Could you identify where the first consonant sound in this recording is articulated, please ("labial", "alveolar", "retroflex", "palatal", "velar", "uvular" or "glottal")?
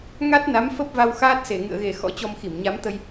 velar